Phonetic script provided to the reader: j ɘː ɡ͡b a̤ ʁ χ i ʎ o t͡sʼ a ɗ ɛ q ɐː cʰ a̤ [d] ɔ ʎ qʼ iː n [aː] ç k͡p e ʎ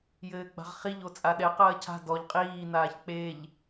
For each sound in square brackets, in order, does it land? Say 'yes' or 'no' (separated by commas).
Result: yes, yes